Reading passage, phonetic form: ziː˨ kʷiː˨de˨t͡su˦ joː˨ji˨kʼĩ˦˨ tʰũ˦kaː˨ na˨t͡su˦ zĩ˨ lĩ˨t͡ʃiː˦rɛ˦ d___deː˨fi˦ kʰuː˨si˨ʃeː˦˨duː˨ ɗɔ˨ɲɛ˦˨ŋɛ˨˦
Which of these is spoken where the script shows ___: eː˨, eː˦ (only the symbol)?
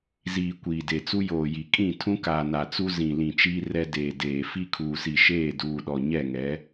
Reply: eː˨